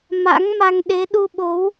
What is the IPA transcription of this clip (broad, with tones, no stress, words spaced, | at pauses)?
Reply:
ma̰˧˥ŋma˧ŋ ɗe˨˦ɗu˧ɓo˨˦w